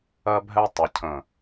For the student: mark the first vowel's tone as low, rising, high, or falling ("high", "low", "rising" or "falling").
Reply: high